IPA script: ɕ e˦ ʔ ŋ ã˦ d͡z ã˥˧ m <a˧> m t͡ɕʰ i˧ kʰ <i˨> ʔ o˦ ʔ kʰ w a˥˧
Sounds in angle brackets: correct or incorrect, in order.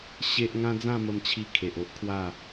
incorrect, incorrect

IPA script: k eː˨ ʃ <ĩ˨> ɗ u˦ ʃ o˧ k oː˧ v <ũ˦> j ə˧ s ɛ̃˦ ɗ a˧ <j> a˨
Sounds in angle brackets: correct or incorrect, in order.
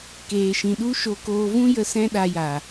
correct, correct, correct

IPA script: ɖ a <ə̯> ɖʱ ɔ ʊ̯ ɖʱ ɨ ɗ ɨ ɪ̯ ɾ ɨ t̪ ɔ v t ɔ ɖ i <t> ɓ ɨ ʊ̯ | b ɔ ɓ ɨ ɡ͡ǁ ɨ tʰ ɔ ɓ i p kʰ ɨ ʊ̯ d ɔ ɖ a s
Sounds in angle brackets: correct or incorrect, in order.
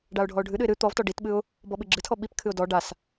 incorrect, correct

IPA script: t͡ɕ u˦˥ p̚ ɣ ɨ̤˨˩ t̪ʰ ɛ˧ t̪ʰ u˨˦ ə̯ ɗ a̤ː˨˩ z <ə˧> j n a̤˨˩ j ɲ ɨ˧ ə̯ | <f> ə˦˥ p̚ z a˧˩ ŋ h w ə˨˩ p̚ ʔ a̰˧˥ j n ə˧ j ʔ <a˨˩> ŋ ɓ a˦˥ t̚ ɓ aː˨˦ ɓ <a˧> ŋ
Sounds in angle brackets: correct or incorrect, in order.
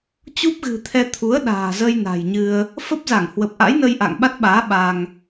correct, correct, incorrect, correct

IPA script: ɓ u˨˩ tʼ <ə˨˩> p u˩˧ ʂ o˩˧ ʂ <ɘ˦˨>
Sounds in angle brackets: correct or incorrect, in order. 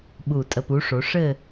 correct, correct

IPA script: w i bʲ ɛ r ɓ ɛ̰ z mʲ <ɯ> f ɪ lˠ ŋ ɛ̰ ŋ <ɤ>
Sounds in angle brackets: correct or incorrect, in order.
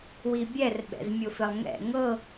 incorrect, correct

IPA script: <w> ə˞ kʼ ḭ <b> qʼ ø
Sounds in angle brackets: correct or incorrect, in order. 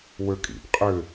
correct, correct

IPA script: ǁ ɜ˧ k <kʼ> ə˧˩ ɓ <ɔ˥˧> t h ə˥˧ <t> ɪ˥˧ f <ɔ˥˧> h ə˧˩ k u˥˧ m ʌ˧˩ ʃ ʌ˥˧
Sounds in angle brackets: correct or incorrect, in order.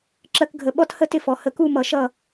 incorrect, correct, correct, incorrect

